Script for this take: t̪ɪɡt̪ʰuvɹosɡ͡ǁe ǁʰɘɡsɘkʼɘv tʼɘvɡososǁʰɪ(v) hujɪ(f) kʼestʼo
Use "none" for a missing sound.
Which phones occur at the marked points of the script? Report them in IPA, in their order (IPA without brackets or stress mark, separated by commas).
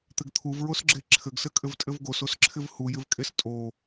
v, v